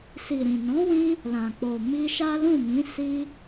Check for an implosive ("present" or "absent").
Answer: absent